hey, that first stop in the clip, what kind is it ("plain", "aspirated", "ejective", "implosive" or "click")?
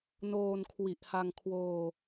aspirated